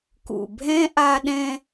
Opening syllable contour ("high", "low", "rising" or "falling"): low